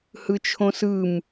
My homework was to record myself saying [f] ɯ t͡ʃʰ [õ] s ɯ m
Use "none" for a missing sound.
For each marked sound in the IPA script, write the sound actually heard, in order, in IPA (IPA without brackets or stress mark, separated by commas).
h, õ